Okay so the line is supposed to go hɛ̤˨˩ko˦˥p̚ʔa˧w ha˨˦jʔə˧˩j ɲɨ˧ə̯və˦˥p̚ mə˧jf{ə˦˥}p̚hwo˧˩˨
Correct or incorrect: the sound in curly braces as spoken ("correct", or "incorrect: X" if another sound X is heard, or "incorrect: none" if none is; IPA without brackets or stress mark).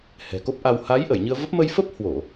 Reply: correct